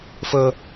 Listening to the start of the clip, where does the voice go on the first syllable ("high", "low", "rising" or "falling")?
low